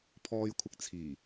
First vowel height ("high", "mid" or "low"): mid